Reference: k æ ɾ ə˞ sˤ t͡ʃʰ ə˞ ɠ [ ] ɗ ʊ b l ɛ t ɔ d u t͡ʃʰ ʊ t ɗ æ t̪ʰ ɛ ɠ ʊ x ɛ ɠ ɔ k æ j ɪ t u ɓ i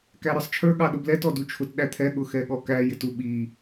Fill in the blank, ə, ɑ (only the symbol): ɑ